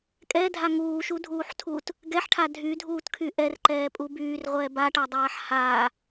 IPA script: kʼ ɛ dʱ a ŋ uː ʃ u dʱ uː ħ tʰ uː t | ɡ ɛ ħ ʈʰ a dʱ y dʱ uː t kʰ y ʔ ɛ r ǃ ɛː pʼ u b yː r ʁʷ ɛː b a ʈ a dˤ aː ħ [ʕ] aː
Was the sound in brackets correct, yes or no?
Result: no